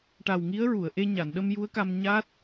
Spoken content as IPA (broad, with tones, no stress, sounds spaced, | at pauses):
ʈ a˨˩ w ŋ i˧˥ ə̯ ɹ u˨˩˨ ə̯ ʔ e˧ ɲ a˨˩˨ n ɗ ə˧ m j u˧˥ ə̯ k a˧ m ɲ a˦˥ t̚